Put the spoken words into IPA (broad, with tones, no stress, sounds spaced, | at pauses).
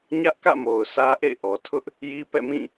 ɲ ä˦ ʔ k ä̰˦˨ m o˨ ʊ̯ s ä˦ ʔ ḛ˦˨ ɪ̯ ʔ ɔ˨ tʰ ʊ˦ ʔ | j i˦ p ɛ̰˦˨ m ĩ˦˨